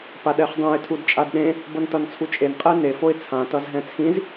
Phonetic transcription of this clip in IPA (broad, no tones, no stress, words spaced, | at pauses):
paɗɛχdˤũɪ̯ tʰudt͡ʃʼadɗẽ | bʌntʌnt͡sʰut͡ʃʼen qʼɛne foɪ̯t͡sʰã tʌzɦɛ̃t͡sʰĩz